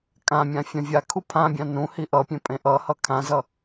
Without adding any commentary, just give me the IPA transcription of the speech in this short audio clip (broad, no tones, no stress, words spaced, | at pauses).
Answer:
kʼãmʲã fʲãvʲakʰu pʰãbʲã nũ hiʔʌpʲẽ pʼẽʔʌhʌ kʰãzʌ